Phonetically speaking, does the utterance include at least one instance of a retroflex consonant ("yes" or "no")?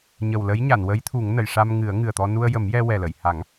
yes